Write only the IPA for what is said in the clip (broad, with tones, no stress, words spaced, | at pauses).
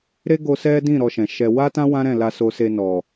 ɾe˦ɡo˧ sɛ˦dĩ˦˨ ɾɔ˧ʃɛ̃˨ʃɛ˧ wa˦tã˦ wã˦ɾɛ̃˦˨ la˧so˧ se˧ nɔ˨